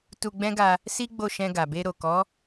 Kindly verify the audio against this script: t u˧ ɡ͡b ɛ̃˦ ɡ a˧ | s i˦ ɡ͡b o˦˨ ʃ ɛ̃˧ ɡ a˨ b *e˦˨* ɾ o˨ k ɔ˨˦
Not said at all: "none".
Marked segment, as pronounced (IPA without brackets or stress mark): e˧